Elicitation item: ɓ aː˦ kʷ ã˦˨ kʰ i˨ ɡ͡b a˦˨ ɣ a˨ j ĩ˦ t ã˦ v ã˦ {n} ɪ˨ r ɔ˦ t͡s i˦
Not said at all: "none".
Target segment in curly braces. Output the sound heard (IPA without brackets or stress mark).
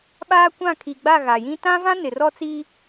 n